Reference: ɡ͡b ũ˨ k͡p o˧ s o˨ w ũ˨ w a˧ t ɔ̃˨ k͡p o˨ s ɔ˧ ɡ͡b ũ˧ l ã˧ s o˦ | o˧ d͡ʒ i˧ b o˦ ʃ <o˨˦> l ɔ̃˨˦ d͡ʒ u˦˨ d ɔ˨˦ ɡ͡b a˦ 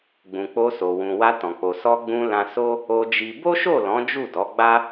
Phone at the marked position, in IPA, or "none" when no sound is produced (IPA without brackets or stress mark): o˦˨